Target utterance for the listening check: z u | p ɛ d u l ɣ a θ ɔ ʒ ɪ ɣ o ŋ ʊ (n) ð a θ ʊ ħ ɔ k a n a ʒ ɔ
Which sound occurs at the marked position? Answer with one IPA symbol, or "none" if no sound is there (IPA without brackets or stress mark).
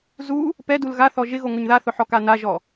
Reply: ɲ